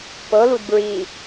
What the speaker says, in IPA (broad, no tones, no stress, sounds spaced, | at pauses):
p ɤ l u d b ɹ i